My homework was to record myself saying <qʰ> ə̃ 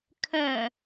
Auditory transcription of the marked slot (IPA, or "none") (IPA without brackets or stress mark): kʰ